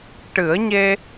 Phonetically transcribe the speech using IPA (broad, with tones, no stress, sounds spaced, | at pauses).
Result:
ʈ ɨ˨˩˦ ə̯ ɲ e˧